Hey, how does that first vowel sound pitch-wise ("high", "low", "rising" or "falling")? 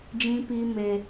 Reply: high